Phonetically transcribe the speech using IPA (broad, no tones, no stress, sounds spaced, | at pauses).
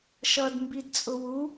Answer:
ʃ ʌ d m b i d t͡sʼ ʊ w u